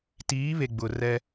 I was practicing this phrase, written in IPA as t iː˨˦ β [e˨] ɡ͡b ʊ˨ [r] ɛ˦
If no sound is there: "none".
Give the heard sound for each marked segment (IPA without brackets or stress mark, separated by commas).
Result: e˨, r